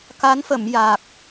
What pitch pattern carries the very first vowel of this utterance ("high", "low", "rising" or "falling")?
rising